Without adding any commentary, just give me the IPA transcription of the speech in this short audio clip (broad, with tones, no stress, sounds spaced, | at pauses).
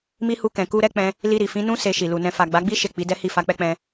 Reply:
m i˦ h u˧ k ɛ̃˨ k u˧ ɾ ɛ˦ k͡p ɛ̃˧ | l i˧ ɾ i˨ f ĩ˨˦ n ũ˦ s e˧ ʃ i˨ l u˨ n ɛ̃˧ f a˨ ɡ͡b a˨˦ ɡ͡b i˦ ʃ e˦˨ k͡p i˨˦ d ɛ˦ h i˦˨ f a˧ k͡p ɛ˦ k͡p ɛ̃˧